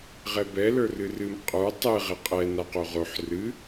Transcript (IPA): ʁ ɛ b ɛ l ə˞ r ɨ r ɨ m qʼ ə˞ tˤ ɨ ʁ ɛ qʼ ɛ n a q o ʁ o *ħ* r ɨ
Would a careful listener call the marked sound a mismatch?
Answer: no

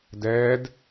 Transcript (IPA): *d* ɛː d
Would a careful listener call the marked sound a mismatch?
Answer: no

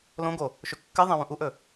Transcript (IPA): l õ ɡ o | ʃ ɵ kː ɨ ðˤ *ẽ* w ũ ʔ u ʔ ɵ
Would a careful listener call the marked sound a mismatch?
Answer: no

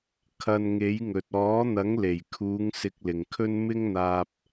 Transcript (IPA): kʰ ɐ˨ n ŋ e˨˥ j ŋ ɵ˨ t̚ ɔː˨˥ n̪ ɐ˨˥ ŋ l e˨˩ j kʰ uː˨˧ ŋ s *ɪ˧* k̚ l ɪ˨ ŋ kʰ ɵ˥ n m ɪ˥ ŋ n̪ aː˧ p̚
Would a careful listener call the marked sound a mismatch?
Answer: no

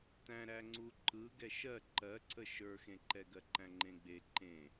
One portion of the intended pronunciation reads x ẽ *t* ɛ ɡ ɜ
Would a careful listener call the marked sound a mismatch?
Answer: yes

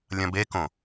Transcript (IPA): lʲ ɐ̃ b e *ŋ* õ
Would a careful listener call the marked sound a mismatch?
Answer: yes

